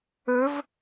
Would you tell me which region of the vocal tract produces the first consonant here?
lips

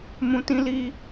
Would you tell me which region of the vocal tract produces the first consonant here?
lips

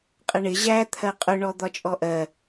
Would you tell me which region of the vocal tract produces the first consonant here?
uvula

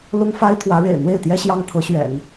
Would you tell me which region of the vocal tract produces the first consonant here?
tongue tip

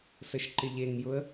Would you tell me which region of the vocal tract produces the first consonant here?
tongue tip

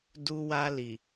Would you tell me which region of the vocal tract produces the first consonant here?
tongue tip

